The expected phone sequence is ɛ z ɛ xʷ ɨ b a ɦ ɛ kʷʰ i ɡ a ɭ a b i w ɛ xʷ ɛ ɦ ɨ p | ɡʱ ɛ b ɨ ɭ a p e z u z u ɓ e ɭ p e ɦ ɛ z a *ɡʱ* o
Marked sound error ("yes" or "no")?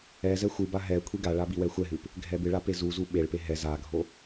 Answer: no